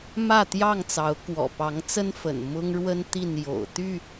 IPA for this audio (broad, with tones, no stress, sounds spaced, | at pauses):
m ä˥˨ t̪ j ɑ˥˨ ŋ t͡s ɑ˨˦ ʊ̯ k w ɔ̰˨˩ p ɑ˨˦ ŋ t͡s ə˦ n f ə̰˨˩ n m ʊ˦ ŋ ɻ w ə˦ n t̪ i˥˨ n j o̰˨˩ ʊ̯ t̪ y˥˨